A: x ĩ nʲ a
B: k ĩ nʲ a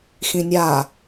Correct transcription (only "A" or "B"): A